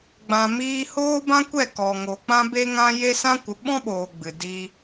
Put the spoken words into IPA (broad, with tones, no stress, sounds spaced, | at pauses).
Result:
ɡ͡b ã˨ m iː˧ h oː˦ b ã˦ kʷ ɛ˦˨ k ɔ˨ ŋ oː˨ k͡p ã˦ b e˦ ŋ ã˦ j e˦ s ã˦ kʷ ə˨˦ ɓ ɔ̃˦ ɓ oː˨ ɡ͡b ɨ˨ d i˧